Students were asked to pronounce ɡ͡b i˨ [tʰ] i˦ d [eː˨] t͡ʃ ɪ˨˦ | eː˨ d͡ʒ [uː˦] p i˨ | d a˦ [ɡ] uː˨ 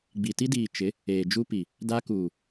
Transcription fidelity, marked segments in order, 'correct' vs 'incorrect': incorrect: t, incorrect: iː˨, incorrect: u˦, incorrect: k

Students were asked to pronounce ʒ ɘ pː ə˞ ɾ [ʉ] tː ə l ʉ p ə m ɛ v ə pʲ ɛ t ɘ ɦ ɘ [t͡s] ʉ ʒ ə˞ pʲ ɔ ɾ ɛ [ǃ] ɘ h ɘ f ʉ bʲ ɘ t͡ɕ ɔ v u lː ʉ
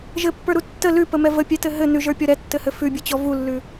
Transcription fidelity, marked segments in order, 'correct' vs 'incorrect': incorrect: u, incorrect: n, incorrect: tː

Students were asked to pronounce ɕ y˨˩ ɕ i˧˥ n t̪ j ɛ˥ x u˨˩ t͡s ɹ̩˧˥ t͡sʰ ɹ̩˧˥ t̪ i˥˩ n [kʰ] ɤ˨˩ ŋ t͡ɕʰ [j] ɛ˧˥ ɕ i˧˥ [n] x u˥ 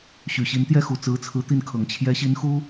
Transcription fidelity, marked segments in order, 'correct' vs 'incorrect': correct, correct, correct

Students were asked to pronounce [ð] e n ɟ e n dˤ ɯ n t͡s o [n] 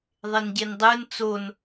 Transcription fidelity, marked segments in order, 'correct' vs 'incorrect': incorrect: ðˤ, correct

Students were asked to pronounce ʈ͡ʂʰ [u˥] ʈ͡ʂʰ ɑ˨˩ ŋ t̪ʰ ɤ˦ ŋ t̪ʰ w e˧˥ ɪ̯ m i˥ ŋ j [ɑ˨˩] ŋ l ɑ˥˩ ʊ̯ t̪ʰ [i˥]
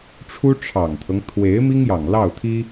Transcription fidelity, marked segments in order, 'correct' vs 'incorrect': correct, correct, correct

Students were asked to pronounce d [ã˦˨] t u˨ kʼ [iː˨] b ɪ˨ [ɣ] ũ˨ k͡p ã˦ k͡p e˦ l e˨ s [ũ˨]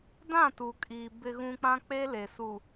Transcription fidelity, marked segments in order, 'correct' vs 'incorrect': correct, correct, correct, incorrect: u˨

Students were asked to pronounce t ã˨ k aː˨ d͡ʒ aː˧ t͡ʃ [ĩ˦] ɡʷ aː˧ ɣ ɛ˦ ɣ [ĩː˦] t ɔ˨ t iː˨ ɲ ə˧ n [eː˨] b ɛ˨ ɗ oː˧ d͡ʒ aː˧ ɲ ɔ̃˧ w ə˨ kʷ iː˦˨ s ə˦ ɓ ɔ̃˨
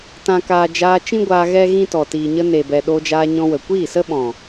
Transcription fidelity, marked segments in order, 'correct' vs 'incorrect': correct, incorrect: ĩ˦, incorrect: e˨

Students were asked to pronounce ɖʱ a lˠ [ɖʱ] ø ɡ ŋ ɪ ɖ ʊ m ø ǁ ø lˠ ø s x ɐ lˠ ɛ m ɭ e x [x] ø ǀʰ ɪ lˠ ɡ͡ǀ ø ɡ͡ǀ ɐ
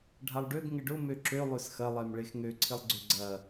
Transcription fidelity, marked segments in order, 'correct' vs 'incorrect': incorrect: ɖ, incorrect: ŋ

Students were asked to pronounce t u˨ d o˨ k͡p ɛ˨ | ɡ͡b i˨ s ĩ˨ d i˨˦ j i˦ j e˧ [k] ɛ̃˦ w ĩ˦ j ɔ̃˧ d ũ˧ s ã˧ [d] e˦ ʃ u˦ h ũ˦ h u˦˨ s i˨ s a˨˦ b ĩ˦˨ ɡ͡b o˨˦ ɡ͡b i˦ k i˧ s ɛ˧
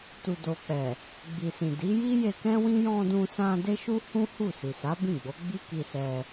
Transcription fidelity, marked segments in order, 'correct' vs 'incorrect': correct, correct

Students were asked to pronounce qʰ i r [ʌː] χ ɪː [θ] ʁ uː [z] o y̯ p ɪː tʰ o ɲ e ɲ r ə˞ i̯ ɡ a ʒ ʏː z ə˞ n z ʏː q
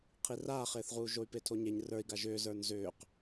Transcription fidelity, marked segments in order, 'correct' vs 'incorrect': incorrect: aː, correct, incorrect: ʒ

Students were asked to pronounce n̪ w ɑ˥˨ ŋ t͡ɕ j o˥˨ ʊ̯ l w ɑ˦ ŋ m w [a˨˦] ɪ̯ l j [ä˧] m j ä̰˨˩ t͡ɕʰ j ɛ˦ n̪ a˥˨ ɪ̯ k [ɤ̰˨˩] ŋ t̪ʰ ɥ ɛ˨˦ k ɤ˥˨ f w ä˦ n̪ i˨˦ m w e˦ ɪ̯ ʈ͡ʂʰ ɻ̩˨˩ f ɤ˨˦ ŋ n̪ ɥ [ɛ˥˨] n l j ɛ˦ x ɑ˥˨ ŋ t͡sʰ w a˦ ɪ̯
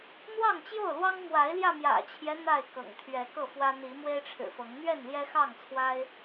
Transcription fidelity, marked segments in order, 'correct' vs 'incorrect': correct, correct, correct, correct

